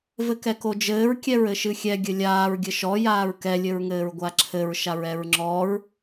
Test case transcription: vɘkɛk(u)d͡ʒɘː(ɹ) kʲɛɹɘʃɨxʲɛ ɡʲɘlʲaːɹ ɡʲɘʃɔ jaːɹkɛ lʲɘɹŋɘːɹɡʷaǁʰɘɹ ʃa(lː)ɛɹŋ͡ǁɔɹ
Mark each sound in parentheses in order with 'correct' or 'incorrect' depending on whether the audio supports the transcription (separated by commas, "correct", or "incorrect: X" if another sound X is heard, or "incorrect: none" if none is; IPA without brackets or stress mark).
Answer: incorrect: o, correct, incorrect: ɹ